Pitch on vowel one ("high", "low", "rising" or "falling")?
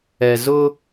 low